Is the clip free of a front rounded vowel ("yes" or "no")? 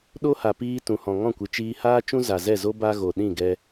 yes